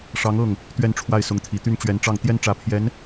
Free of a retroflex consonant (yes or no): no